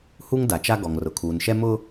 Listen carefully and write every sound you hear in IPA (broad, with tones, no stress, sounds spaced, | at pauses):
h u˦ ŋ d a˨ t͡ʃ a˦ ɡ ɔ˨ ŋ r ʊ˨ kʰ uː˨ n ʃ ɛ˦ m ʊ˦